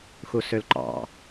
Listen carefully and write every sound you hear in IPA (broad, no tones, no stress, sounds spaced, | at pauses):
x u s ø l ǃ ɑ̰